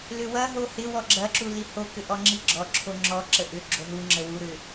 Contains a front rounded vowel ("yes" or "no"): yes